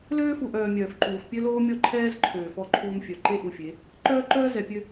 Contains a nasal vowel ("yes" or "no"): no